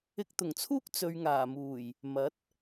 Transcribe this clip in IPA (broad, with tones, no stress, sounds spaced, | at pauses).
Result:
ɪ˧ k̚ t̪ ʊ˨˩ ŋ t͡sʰ uː˥ k̚ t͡s ɵ˨ ɥ ŋ aː˨˩ m uː˨˩ j | m ɐ˨˥ t̚